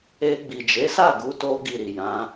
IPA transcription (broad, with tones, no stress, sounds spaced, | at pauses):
e˧ ɡ͡b i˨ d͡ʒ e˨˦ s a˦˨ ɡ u˧ t o˧ ɡ i˨ ɾ i˨ j ã˨˦